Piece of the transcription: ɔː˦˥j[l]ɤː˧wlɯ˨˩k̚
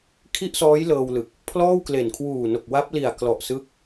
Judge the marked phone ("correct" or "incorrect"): correct